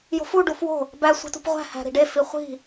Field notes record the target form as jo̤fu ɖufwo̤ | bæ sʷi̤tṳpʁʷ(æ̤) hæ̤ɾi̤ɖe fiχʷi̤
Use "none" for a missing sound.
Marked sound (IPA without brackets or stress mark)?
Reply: æ̤